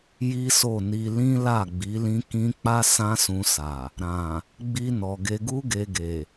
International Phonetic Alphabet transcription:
j i˦ s o˦˨ n i˧ l ĩ˦ l a˦˨ ɡ͡b i˨˦ l ĩ˦ k ĩ˦ k͡p a˦ s ã˦ s ũ˧ s a˨ | ɾ ã˨ | ɡ͡b i˧ n ɔ˨ ɡ e˧ ɡ u˦ ɡ e˧ ɡ e˨

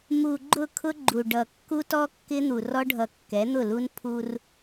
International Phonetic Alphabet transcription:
m u˨ ɡ͡ǃ ʊ˦˨ kʰ ʊ˦ ɡ͡ǃ u˨ ɖ ʌ˨ kː u˦ t ɔ˦ kː ɪ˦ n̪ u˨ r ɔ˦ ɖʱ ʌ˨ kː ɛ˨˦ n̪ ʊ˦˨ l u˦ n pʰ u˦ r

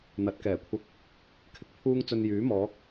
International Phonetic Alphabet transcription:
n̪ ɐ˨˥ t̚ k ɛː˨˩ kʷʰ ɐ˧ k̚ | kʰ ɪ˨˥ k̚ pʰ uː˧ ŋ t͡s ɵ˨ n j yː˨˥ m ɔː˨˥ k̚

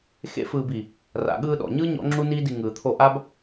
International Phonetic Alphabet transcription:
x ḛ˦ f ɯː˧ b i˨ | r a̰˨ ɠ ɯː˧ ɗ ɔ̰˨ ɲ ɯː˦ ɲ ɔ̰˦ ŋ͡ǁ u˦ n iː˦ d i˧ ŋ ɯː˨ t̪ʰ o˧ ʔ a˦ b

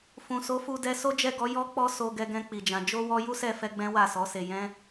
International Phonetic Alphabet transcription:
f ũ˨ s o˨˦ f u˧ d ɛ˧ s o˦ d͡ʒ ɛ˦˨ ɡ ɔ˨˦ j ɔ˦ k͡p ɔ˦ s o˧ ɡ ɛ˧ ɡ ɛ̃˧ k͡p i˨ d͡ʒ ã˨ d͡ʒ o˧ w ɔ˧ j u˦ s ɛ˦˨ f ɛ˧ ɡ͡b ɛ̃˦ w a˦˨ s ɔ˨˦ s e˧ j ɛ̃˦

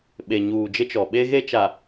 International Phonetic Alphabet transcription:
ɓ e˨ ɲ uː˨ d͡ʒ ɪ˦ t͡ʃ ɔ˨ ɓ e˦ ɣ e˦ t͡ʃ a˨

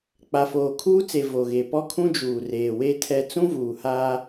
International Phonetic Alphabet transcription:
k͡p a˨ f oː˨ kʰ uː˦ t͡s e˨ v o˨ ɣ e˨ p ɔ˦ kʰ ũ˦ d͡ʒ uː˨ r eː˨ w e˦ tʰ ɛ˦ t͡s ũ˦ v uː˨ h aː˦

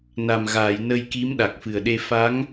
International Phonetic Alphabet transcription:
n a˨˩ m ɣ aː˨˩˨ j n ə˧ j k i˧˥ m ɗ a˨˩ k̚ f ɨ˨˩ ə̯ ɗ e˧ f a˧˥ ŋ

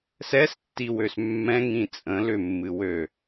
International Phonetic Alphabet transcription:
s ɛ s tː i w ø s mː ɛ̃ ŋ ĩ t͡sʼ ə̃ l ʏ mː ɨ w ø

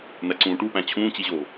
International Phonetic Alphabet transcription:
n̪ æ ǀ ũː ʈ u p æ̃ t͡ɕʰ ũː t͡ɕ i ʑ oː

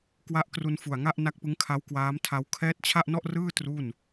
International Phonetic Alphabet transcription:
k w a˦˥ ʔ k r u˧ n f u˨˩ a̯ ŋ a˥˩ ʔ n a˦˥ k̚ p ɯ˦˥ ŋ kʰ a˦˥ w k w aː˦˥ m tʰ a˦˥ w kʰ ɛː˦˥ t̚ t͡ɕʰ a˥˩ ʔ n ɔ˥˩ ʔ r ɯː˥˩ t r u˥˩ n

